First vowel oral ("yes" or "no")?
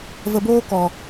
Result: yes